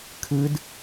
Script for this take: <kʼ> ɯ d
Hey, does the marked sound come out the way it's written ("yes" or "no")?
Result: no